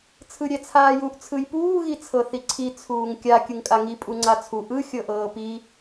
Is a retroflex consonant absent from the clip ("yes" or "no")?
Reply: yes